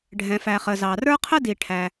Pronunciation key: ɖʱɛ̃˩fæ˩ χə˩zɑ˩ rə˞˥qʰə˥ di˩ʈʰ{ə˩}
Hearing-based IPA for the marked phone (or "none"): æ˩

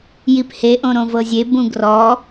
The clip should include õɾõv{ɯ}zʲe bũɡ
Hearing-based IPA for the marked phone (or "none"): ɤ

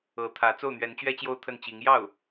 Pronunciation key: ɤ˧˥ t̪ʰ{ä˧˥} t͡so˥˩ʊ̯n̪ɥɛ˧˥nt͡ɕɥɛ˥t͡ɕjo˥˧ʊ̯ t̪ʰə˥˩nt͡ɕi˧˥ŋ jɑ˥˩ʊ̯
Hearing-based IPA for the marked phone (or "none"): ä˧˥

